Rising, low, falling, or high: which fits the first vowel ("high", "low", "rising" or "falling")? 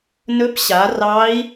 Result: rising